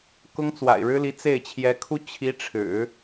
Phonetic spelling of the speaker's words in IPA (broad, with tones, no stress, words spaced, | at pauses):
kʊ˥ŋt͡swa̰˨˩ɪ̯ɻɻ̩˥li˧˥ t͡se˥˩ɪ̯t͡ɕʰjɛ˧˥kʰu˥ t͡ɕʰi˧˥ʈ͡ʂʰɻ̩˨˩˦